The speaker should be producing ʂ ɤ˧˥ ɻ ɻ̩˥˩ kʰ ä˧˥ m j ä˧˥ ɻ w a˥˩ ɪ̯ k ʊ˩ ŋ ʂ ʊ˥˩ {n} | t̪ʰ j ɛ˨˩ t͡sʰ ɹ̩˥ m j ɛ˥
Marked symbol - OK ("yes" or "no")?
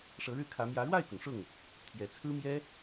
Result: no